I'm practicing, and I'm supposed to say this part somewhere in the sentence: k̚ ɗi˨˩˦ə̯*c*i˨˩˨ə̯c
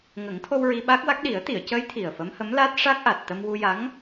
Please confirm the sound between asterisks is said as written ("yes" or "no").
no